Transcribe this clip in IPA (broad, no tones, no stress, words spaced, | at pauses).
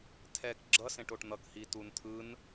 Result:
tʰɛk ɡ͡ǁʌ sẽʈoʈn̪ʌk hituntʰɯn